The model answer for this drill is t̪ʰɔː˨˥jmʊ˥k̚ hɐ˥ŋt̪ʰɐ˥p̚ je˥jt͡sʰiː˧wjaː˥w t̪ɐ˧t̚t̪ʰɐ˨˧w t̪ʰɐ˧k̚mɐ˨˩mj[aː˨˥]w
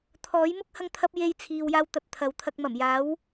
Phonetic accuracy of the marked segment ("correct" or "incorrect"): correct